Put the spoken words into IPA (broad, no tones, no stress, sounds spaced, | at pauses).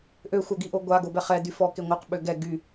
ʔ ø xʷ œ ɡ i ʔ o ɡʷ a ɡ o b ɛ χ ɛ d y f ɔ k e ŋʷ œ q ɓ ø ɡ ɛ ɡ y